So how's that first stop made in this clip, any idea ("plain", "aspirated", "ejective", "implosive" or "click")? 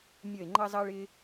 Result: click